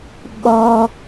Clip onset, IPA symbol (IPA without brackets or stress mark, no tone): ɓ